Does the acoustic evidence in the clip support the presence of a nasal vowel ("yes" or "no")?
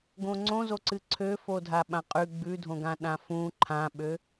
yes